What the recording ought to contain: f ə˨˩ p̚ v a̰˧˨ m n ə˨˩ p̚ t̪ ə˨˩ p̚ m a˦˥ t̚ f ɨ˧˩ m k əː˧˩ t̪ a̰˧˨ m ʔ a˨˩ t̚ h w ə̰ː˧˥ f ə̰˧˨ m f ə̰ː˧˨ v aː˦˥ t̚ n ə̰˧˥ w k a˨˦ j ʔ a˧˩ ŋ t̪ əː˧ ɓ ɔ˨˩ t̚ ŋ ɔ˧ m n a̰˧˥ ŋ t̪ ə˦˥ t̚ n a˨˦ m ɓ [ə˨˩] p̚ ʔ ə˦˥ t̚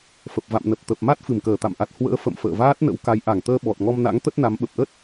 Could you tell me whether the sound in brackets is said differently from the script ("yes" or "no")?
no